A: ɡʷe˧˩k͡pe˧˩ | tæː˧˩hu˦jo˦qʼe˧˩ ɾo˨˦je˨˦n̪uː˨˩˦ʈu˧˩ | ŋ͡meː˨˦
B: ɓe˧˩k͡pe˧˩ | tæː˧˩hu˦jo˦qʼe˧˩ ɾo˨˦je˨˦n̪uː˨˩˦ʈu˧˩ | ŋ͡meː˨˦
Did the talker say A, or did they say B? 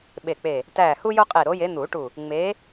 B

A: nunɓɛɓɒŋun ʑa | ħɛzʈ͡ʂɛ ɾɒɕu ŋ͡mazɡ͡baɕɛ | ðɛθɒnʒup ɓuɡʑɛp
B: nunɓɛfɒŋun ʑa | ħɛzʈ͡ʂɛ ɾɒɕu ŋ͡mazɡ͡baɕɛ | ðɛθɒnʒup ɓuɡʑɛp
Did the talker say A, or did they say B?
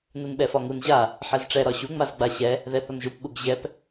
B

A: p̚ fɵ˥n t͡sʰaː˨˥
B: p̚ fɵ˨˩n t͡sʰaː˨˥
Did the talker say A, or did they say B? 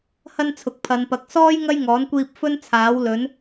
A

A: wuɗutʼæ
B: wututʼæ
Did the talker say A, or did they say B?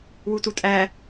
B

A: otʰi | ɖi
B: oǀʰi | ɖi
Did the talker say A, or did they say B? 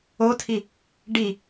A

